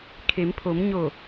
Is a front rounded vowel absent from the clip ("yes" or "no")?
yes